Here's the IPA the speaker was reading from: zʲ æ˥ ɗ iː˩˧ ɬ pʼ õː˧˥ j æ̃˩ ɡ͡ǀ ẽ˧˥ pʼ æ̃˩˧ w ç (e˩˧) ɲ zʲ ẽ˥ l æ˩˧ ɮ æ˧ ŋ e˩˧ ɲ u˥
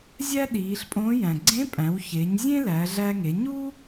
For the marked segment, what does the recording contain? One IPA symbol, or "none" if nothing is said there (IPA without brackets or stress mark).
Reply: e˩˧